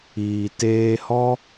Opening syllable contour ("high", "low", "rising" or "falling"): low